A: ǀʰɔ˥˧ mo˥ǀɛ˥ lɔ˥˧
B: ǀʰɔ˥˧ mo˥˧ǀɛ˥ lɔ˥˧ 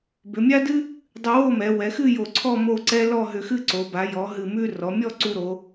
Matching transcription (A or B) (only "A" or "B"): B